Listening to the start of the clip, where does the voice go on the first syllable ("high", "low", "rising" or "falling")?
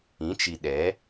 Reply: rising